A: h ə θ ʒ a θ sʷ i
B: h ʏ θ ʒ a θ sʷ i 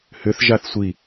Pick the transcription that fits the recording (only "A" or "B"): B